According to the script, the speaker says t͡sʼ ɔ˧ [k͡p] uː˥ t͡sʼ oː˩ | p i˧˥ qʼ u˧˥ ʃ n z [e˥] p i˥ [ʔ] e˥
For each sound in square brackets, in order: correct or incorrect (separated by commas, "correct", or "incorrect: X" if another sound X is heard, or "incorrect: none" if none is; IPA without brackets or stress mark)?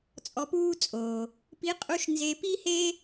incorrect: p, incorrect: e˧, incorrect: h